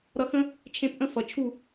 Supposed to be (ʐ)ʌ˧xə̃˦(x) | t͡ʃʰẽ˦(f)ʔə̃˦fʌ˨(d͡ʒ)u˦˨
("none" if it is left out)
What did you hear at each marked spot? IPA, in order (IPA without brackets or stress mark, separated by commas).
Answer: ɾ, none, p, t͡ʃʰ